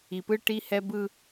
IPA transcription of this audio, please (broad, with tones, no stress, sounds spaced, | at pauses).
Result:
i˨ p ɯ˦ ʈ i˦ h ɛ˦ b ɯ˦